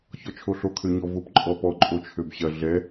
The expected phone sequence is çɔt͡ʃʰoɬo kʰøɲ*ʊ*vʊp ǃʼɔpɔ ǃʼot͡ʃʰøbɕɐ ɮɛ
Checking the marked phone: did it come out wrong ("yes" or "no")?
yes